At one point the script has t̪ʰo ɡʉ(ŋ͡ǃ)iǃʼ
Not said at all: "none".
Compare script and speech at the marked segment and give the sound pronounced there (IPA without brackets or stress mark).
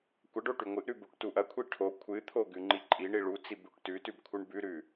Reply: ŋ͡ǃ